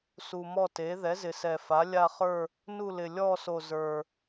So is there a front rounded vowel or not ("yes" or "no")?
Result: no